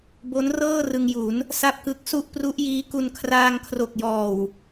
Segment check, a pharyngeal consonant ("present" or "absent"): absent